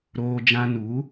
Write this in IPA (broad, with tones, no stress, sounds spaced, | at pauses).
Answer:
ɾ oː˧ d͡ʒ ã˧ n u˨˦